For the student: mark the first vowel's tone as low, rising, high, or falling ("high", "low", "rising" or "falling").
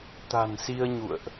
low